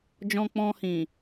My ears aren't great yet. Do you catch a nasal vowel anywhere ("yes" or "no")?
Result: yes